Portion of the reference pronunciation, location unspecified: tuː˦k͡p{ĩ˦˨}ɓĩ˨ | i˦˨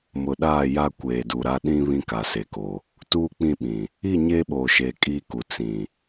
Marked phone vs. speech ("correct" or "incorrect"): correct